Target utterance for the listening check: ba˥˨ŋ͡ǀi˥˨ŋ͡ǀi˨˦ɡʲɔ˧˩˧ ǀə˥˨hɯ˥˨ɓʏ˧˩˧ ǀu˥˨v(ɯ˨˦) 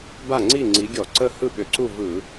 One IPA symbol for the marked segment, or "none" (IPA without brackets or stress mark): ɯ˧˩˧